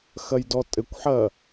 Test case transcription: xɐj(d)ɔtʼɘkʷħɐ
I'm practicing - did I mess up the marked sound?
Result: no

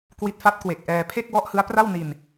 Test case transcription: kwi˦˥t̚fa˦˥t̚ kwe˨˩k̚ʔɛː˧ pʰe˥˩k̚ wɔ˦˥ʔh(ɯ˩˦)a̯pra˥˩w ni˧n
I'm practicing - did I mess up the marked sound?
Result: yes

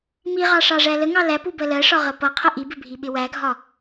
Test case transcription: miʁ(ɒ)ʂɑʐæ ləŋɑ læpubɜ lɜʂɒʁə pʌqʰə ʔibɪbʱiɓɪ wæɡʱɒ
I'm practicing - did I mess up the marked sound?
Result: yes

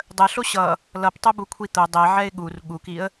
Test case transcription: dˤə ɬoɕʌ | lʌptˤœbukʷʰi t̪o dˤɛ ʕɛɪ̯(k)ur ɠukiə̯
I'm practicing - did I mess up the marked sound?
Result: yes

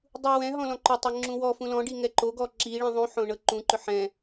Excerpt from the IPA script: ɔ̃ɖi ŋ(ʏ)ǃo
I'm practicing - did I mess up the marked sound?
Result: yes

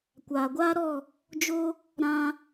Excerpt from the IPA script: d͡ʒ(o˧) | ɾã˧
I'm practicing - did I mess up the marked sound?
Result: yes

